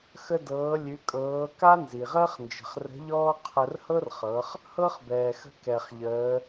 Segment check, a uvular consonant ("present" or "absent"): present